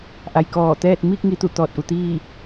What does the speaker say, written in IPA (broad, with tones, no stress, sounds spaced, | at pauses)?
ʔ a˩ j k ɔː˧˩ t̪ ɛː˥˨ t̚ m iː˥˨ k̚ ŋ i˩˧ t̪ u˧˩ t̪ ɔː˧˩ t̚ ʔ u˩ t̪ iː˥˨